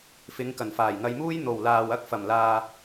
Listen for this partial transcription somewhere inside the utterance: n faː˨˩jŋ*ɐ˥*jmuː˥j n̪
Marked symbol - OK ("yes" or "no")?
no